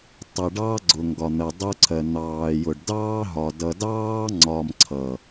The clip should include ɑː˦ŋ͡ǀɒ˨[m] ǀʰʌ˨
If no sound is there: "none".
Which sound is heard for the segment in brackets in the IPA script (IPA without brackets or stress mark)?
m